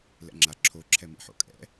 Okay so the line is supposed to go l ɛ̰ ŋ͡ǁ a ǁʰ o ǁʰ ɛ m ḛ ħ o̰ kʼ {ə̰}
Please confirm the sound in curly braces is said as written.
no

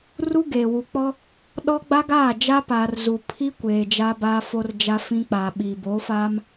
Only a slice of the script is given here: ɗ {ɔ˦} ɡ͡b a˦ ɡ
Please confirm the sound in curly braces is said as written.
yes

